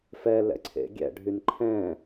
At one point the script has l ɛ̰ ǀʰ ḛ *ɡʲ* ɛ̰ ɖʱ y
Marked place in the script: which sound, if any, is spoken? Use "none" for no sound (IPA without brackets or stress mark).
ɡʲ